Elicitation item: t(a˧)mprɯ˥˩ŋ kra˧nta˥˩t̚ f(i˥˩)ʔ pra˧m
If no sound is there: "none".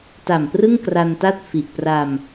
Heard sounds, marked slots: a˨˩, i˨˩

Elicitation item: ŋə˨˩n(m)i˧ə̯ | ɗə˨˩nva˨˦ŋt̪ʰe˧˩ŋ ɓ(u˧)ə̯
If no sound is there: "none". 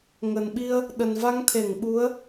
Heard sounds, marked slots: ɓ, u˨˦

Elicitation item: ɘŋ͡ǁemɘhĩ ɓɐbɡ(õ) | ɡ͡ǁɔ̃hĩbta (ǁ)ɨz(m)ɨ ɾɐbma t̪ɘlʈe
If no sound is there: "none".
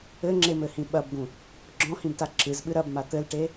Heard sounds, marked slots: ũ, ǁ, ɓ

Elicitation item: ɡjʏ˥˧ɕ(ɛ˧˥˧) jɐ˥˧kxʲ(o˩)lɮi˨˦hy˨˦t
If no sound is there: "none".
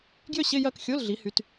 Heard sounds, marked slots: ɪ˧˥˧, o˧˥˧

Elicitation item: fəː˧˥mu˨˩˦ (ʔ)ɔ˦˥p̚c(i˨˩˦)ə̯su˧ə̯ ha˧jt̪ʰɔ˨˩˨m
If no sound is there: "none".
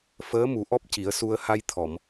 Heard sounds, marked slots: ʔ, i˨˩˦

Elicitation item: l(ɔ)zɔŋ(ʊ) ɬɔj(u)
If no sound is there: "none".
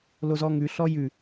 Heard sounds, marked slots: o, ʉ, ʉ

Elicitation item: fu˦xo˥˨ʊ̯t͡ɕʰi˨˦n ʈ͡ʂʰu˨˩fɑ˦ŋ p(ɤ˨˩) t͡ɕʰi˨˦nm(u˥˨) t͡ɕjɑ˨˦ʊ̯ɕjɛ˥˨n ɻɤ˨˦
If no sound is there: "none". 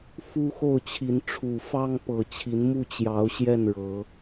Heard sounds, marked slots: ɤ˨˩, u˥˨

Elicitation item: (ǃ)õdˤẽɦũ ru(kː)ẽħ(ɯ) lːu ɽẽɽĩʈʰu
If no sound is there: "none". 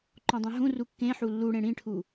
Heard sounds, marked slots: ǃ, kː, u

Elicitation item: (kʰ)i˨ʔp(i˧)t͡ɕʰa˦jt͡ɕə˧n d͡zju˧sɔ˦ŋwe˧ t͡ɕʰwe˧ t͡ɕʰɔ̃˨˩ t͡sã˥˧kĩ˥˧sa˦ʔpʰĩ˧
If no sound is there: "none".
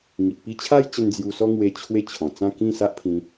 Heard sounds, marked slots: ŋ, i˧

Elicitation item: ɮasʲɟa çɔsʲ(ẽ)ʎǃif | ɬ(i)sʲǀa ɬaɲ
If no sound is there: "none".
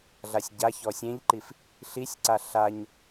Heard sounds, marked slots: ẽ, i

